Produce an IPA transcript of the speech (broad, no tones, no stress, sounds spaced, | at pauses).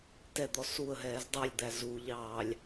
t ɛ d̪ ɔ s u ə̯ ɦ ɛː z dˤ ɛ lʲ d̪ æ z u ʎ ɑː lʲ